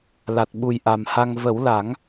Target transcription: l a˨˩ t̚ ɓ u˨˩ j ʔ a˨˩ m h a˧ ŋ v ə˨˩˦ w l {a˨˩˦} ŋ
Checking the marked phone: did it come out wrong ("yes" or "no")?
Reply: no